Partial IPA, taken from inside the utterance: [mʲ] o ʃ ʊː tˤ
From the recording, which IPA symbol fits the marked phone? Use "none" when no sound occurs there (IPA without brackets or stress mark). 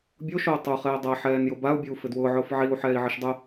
bʲ